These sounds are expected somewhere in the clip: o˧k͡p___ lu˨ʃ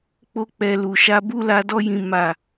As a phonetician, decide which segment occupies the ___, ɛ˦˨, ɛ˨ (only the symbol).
ɛ˨